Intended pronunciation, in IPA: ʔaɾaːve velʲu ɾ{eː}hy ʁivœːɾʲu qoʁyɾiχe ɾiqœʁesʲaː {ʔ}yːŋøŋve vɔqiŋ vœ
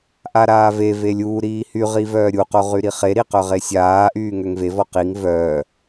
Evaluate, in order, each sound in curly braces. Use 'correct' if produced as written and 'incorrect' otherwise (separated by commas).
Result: incorrect, correct